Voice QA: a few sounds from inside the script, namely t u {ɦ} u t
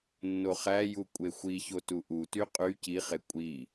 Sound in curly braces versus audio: incorrect: ʔ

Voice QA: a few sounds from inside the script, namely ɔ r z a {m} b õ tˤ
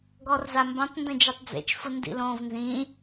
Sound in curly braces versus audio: correct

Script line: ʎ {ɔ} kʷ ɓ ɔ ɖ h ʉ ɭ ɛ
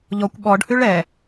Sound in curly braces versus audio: correct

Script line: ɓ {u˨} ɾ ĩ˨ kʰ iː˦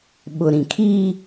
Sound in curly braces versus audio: incorrect: ʊ˨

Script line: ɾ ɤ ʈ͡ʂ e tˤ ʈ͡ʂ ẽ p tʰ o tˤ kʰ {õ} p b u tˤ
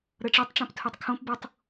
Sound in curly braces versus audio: correct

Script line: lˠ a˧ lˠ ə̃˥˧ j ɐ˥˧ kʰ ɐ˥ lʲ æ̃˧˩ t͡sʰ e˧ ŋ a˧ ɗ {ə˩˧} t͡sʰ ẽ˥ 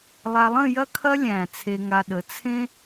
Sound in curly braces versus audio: correct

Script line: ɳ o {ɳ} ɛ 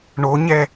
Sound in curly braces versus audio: incorrect: ɲ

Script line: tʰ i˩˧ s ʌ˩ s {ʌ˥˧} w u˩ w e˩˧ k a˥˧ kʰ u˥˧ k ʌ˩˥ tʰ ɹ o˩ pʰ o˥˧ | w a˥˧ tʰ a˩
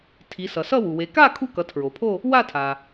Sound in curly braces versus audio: correct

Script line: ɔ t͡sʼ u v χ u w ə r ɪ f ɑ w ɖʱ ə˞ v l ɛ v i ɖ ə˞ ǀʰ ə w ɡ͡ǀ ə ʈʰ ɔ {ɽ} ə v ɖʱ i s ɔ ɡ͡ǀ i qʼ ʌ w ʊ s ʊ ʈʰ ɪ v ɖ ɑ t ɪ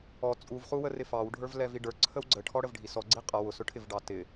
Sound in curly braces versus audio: correct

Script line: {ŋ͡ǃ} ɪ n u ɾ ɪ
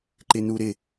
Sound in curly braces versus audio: incorrect: ǃ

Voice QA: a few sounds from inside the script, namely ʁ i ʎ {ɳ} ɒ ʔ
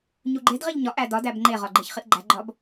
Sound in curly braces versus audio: incorrect: ɲ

